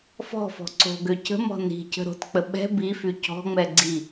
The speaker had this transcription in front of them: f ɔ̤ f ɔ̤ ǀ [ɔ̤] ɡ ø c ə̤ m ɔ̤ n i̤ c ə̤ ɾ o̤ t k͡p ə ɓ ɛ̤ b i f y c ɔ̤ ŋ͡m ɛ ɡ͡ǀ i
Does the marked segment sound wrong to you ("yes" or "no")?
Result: yes